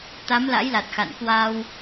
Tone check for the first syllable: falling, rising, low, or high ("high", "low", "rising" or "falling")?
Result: rising